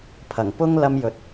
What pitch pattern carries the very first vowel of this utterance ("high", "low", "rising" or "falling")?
low